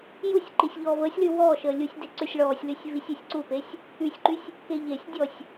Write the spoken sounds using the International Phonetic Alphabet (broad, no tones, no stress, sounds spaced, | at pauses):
j u sʲ ǃ i sʲ ʎ ɔː v əː sʲ l y w ɔː ʃ əː lʲ u sʲ d e ǀ ø sʲ ɭ ɔː sʲ l y sʲ v i sʲ ø sʲ ǀ u p e sʲ | y sʲ ǃ y sʲ | k e ʎ e sʲ dʲ ɔ sʲ